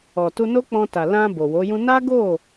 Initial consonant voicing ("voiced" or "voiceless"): voiceless